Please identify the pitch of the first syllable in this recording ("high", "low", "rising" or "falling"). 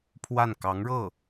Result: falling